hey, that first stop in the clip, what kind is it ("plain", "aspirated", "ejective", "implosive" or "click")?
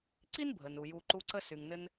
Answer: click